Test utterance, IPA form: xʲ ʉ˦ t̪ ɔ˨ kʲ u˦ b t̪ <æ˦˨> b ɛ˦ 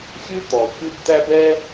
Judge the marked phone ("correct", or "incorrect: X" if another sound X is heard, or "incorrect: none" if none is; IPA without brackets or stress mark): incorrect: æ˦